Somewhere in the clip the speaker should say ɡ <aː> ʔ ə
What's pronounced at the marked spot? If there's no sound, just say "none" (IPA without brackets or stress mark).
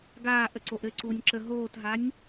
aː